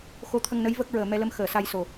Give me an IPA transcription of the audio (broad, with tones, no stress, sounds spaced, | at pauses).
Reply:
x o˧˥ t̪ʰ ə˧ ŋ n ə˧˥ j v ə˦˥ k̚ ɹ əː˨˩ m ɛ˧ l ə˧ m x əː˨˩ s a˧ j s o˨˩